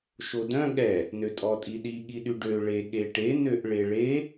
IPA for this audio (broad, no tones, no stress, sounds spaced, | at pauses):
ʃ o d œ̃ ɠ ɛ | n ø tʼ ɔ tʼ i ɗ i ɠ i ɗ y ɖ ø ɭ e ɠ e ʈ e n ø ʔ ɭ e ɭ e